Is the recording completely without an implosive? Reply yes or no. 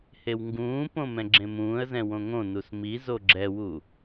yes